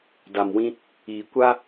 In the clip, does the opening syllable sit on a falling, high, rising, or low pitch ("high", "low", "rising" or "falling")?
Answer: low